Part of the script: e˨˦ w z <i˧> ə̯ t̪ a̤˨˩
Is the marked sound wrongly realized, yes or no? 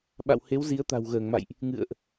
yes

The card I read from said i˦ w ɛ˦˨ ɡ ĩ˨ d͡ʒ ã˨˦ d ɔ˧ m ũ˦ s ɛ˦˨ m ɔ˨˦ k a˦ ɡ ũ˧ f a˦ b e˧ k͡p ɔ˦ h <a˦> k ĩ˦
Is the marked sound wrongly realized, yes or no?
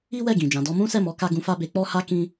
no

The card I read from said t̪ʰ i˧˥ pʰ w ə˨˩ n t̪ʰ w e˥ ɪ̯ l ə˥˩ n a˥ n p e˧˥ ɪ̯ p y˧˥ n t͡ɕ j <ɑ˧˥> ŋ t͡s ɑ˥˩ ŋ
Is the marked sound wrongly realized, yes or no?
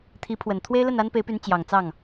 yes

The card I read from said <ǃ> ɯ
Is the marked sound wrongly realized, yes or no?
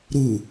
yes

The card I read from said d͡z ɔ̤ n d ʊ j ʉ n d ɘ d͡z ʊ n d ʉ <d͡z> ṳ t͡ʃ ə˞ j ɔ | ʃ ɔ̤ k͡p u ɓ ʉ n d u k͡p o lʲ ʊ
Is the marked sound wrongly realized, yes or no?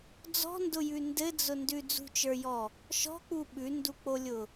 no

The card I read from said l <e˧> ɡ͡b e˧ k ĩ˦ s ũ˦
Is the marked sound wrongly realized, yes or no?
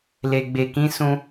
no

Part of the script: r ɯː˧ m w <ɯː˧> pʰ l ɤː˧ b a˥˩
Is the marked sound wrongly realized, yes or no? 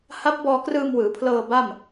yes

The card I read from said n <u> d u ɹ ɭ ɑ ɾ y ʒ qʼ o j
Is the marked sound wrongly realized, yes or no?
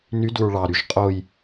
yes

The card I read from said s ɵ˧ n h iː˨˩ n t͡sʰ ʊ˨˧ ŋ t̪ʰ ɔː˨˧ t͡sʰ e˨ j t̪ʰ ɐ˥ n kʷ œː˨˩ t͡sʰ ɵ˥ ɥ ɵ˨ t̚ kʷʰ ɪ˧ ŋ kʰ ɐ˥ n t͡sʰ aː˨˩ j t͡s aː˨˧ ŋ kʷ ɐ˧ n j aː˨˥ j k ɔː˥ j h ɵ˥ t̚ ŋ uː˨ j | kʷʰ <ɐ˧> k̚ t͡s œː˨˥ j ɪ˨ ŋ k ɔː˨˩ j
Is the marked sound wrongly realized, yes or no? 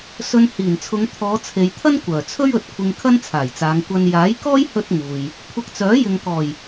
no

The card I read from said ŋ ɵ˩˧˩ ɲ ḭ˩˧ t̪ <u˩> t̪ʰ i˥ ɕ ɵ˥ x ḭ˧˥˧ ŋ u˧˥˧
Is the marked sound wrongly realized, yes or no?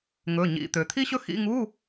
yes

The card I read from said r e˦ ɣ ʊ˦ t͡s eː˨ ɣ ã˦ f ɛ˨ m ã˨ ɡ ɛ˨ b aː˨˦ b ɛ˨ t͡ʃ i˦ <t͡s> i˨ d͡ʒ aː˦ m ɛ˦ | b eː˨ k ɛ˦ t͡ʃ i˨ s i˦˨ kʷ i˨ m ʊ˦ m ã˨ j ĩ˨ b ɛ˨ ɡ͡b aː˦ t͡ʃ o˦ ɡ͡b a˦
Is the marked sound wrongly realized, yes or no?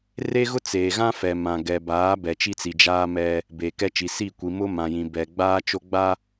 no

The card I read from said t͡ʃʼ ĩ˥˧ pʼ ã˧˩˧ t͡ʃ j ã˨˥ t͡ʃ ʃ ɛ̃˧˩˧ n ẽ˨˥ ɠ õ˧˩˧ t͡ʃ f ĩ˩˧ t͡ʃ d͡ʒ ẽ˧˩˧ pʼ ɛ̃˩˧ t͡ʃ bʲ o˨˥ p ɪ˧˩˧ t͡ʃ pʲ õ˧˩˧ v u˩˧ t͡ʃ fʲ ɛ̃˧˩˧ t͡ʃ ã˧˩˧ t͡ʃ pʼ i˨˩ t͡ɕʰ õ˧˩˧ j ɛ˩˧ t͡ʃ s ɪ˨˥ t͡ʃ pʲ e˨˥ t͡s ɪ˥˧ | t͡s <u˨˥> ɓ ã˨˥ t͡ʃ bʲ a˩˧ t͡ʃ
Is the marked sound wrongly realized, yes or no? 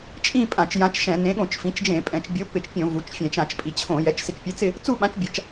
yes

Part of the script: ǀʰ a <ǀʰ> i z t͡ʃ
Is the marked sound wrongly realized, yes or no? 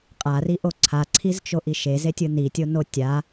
no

